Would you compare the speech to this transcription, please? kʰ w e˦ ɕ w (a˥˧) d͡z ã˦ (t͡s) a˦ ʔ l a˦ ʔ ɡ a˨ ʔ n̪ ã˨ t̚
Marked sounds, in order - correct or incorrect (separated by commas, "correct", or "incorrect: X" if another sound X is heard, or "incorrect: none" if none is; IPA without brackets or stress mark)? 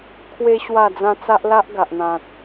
correct, correct